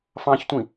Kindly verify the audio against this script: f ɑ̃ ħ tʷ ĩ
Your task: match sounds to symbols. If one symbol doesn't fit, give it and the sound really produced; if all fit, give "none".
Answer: ħ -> ç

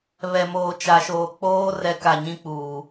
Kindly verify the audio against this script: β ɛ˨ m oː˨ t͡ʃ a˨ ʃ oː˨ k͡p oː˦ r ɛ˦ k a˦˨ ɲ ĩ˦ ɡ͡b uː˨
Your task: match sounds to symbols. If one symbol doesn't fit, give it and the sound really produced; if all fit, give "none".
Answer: ɡ͡b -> k͡p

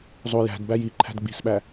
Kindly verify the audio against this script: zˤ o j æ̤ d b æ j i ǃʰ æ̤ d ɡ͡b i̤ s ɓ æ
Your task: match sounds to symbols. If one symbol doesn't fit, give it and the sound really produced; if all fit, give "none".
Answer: none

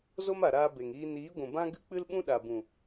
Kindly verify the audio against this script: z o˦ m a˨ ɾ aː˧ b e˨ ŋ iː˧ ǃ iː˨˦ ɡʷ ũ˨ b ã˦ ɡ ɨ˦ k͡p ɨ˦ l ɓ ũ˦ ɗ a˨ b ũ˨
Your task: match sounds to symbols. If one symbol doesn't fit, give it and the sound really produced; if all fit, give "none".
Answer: ǃ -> n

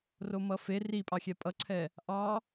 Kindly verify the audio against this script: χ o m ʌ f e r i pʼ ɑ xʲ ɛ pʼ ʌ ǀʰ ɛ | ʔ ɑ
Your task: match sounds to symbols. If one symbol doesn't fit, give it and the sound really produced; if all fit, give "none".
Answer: χ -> r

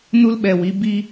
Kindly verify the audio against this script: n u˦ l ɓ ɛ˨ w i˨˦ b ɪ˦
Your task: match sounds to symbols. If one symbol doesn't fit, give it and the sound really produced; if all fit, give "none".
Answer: ɪ˦ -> i˦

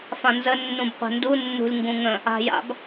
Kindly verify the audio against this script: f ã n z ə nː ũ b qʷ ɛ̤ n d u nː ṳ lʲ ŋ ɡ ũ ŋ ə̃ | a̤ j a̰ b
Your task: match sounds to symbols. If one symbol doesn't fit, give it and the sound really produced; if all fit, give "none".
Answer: none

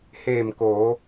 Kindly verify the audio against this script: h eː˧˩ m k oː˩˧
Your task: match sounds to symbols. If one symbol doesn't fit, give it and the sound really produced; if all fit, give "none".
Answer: none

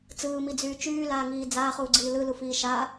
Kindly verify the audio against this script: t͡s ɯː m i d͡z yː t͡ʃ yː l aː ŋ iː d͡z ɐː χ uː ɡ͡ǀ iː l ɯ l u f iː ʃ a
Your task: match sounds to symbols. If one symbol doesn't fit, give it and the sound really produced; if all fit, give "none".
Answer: ɐː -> aː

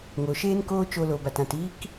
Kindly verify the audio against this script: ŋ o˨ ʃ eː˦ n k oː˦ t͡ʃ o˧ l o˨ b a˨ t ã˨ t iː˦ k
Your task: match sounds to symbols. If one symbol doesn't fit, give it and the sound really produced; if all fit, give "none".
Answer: none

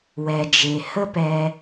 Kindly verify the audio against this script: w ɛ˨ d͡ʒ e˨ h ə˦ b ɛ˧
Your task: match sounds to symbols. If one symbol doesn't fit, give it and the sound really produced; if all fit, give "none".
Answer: b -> p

